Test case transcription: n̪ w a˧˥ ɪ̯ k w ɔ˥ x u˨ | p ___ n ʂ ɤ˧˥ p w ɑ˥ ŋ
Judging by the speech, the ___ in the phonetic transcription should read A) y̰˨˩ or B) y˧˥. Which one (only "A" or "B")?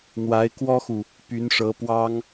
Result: B